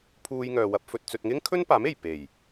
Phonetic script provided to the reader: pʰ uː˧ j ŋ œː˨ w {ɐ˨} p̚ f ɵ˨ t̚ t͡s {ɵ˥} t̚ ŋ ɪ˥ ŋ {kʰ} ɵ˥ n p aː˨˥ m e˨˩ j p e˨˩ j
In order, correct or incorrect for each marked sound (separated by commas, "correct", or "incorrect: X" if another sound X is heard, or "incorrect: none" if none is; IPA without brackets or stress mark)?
incorrect: ɐ˧, incorrect: ɵ˨, correct